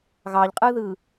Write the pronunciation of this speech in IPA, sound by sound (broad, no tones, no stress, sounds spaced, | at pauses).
ɣ ɑ ʎ qʼ ɯ ð ɯ